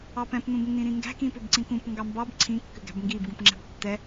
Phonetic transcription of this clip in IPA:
ɑpɛ̃p nũbnːĩɾĩŋɡæ̤ kĩpʏbǀĩkũp ŋɡɑmbɑb ǀʰĩ kːʏɡæ̤bŋɡib ɡũpŋ͡ǁæ̤btːɛ

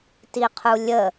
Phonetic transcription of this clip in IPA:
tiqʰulʲə

